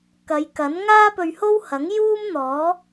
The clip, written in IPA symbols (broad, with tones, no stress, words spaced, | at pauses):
kɐ˨˧jkɐ˨˥n ŋaː˥pɵ˧ɥho˥whɐ˨˥ŋ juː˥mn̪ɔː˨˥